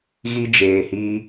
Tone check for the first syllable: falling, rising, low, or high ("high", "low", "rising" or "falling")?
high